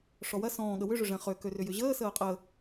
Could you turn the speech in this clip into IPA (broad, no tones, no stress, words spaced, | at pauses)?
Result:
ʂɔwɐ sɔ̃ːɠə wʏʐʏ ʐɛ̃χø kørʏjʏʑəː səːqʼə